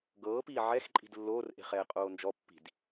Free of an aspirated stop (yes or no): yes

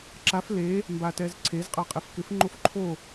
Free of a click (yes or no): no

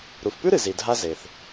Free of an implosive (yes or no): yes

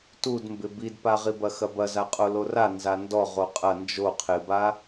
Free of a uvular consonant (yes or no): no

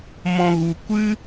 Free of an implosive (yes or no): yes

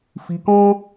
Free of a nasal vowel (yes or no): no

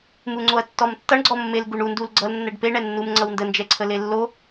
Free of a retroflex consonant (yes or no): no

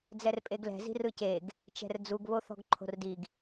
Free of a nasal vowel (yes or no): yes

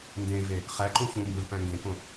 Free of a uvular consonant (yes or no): no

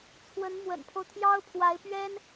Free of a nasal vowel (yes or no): yes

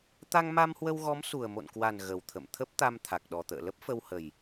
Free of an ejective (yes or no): yes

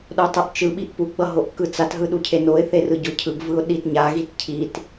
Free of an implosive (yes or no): no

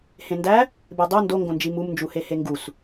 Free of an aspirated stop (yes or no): yes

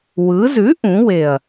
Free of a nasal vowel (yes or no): no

